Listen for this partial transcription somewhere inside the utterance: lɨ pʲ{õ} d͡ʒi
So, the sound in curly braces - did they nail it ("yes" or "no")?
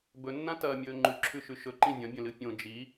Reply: yes